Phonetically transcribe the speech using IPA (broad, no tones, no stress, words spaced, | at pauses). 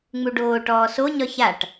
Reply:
ŋ͡muɖoː ʈɔːso ɲɒçaʈ